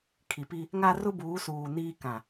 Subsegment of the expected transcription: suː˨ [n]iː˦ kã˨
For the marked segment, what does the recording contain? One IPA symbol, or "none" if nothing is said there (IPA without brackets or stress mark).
n